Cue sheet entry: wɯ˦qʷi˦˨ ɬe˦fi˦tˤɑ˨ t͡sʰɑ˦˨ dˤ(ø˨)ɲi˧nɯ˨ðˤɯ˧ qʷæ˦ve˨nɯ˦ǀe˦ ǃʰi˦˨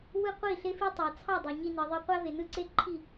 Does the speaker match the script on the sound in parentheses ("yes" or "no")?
yes